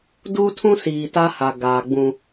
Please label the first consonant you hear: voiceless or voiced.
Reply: voiced